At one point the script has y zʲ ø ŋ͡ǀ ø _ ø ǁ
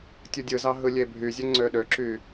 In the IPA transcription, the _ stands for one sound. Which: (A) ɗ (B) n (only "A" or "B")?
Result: A